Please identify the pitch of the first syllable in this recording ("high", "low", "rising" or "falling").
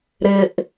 low